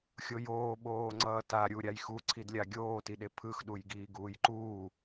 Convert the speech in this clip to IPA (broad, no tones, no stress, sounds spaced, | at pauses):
xʲ o j oː ɓ oː ŋ͡ǀ ʌː t a ɾʲ u ɾʲ a j x u ǀʰ i d lʲ a ɡʲ oː t i ɗ e pʰ ɯ x ɗ u j ɡ iː ɡ uː j ǃ uː